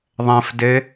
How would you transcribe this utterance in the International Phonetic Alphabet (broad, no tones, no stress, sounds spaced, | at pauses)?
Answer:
ðˤ ɛ̃ f d e